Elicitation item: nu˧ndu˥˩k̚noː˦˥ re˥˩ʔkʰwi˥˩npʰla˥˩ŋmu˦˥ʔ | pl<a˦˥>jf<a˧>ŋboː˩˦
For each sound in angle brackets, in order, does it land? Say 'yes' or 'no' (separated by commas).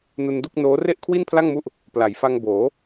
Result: no, yes